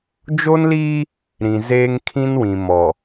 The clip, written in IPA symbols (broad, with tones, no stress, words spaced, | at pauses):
d͡ʒo˦nliː˦ | ɾĩ˨zeː˦ŋ kʰĩ˦nwĩ˨ mɔ˨